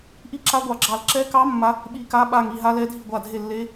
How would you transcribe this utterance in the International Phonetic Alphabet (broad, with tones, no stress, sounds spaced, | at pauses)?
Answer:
ʔ i˥˩ ǁ a˧˥ ɡʷ ɑ˧˩ ɡ͡ǁ ɑ˧˩ l ǁ ɛ˧˥ k ɑ˧˥ mː a˧˥ | ɓ i˧˩ k a˧˥ ɓ a˧˩ ŋ i˥˩ ɦ a˧˥ l ɛ˧˥ dʱ i˥˩ ɡʷ a˧˩ dʱ e˥˩ lː e˧˥